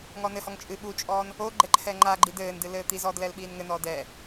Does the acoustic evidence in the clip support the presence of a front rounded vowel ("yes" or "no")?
no